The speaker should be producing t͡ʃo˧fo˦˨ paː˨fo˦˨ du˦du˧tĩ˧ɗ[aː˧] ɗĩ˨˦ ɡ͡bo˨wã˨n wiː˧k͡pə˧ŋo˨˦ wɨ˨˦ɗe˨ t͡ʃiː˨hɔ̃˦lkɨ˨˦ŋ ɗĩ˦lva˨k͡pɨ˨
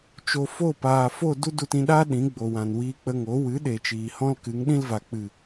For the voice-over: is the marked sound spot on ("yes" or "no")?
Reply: no